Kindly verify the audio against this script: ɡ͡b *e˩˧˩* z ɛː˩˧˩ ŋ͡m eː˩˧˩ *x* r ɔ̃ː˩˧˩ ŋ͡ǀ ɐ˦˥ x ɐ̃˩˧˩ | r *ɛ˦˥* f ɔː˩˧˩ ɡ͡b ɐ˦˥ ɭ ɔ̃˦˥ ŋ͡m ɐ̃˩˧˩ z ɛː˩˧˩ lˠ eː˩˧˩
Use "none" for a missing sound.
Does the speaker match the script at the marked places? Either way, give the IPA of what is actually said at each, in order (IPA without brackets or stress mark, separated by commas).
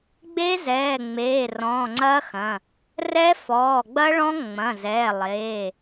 e˦˥, none, ɛ˦˥